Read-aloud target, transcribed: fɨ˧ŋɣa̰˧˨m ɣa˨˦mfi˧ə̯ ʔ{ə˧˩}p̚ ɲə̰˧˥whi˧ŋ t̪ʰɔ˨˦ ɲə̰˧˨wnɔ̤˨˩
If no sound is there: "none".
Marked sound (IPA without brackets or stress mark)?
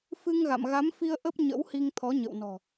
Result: ə˦˥